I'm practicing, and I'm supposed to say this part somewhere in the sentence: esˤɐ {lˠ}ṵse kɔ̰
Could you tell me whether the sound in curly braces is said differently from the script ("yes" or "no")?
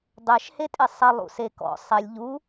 no